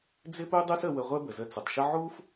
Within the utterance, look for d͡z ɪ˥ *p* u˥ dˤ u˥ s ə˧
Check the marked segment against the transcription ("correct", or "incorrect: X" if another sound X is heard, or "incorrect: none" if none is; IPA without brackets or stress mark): correct